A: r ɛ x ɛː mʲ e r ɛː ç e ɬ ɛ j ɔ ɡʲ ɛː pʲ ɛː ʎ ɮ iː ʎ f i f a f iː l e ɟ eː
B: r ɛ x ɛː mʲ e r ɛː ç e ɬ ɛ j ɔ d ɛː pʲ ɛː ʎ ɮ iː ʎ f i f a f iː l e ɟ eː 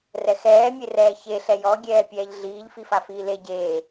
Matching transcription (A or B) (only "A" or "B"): A